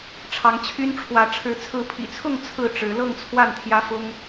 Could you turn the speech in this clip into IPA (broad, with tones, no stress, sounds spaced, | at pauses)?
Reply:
ʈ͡ʂʰ ɑ˨˦ ŋ t͡ɕʰ y˦ n ʈ͡ʂʰ w ä˨˦ ʈ͡ʂʰ ɻ̩˨˦ t͡sʰ ɹ̩˨˦ pʰ ḭ˨˩ t͡sʰ ʊ˥˨ ŋ t͡sʰ ɹ̩˥˨ ʈ͡ʂ ɻ̩˨˦ l ɤ˥˨ ŋ t͡sʰ w a˥˨ n t̪ʰ j ä˦ f ʊ˦ ŋ